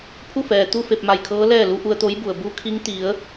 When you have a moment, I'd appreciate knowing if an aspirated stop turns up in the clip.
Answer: yes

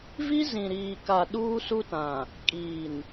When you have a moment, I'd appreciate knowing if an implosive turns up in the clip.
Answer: yes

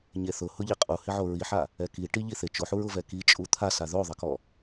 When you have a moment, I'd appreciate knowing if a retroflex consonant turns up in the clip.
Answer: yes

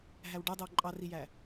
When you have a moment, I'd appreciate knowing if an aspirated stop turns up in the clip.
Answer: no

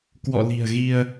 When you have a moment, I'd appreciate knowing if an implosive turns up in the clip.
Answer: no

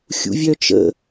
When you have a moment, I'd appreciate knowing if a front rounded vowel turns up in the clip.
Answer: yes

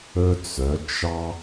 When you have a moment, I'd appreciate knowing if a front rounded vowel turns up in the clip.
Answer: yes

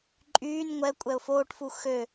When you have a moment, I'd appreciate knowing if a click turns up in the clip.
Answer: yes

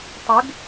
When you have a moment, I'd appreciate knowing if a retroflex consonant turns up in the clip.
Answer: no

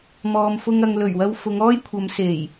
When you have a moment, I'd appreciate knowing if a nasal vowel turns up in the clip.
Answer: no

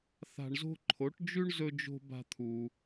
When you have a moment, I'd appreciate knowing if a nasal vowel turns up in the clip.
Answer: no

